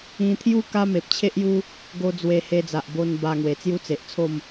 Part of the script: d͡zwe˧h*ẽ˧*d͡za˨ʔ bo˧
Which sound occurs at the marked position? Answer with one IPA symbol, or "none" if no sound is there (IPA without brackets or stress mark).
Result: e˧